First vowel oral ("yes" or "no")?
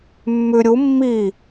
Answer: yes